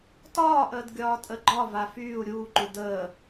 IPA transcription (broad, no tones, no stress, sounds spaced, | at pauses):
t ɒː ʔ əː d ɡʲ ɒː tʼ ə ɡ͡ǃ ɒ v a f yː u̯ ɾʲ uː ǃ u d əː